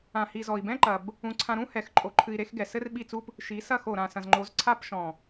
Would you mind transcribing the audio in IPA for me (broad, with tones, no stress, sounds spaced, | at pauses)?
ã˨ h i˨ z ɔ˨ i̯ b ɛ̃˦ ǃ ɐ˨ b | ũ˦˨ ǀʰ ã˦ ɾ ũ˦ h ɛ˨ x ǃʼ o˨ ǃʰ ɨ˨ i̯ ɾ e˦˨ x ɡ ɛ˨ s ɘ˦ r ɓ i˦˨ t͡s u˦ p | ʃ i˨˦ s ɐ˦˨ x o˨ ɾ ã˨ s ɐ̃˨ z ŋ͡ǃ o˨˦ z ǀʰ a˦ p ʃ ɔ̃˨